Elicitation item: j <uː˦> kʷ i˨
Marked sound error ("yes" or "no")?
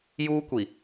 no